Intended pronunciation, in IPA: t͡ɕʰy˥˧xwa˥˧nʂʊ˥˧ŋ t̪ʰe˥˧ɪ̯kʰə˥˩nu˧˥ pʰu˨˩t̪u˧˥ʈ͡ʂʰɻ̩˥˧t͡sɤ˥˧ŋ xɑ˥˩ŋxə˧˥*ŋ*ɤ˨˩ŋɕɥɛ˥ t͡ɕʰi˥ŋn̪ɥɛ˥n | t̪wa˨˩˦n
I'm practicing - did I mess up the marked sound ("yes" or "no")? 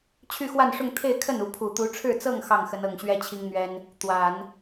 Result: yes